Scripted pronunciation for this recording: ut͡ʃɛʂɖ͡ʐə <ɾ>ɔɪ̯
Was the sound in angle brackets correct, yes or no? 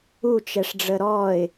yes